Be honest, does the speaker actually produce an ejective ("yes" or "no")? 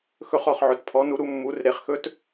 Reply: no